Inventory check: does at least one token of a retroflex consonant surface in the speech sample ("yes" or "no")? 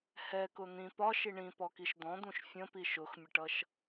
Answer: yes